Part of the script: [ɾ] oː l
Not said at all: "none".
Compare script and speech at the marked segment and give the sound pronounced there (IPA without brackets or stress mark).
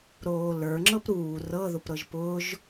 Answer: ɾ